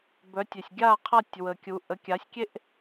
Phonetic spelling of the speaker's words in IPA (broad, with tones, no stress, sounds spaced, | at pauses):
b œ˨˥ tʲ e˨ sʲ ɡʲ a˥˨ qʰ a˥˨ tʲ w ə˨ kʲ u˨˥ ʔ ə˨˥ kʲ a˨˥ sʲ kʲ e˥ ʔ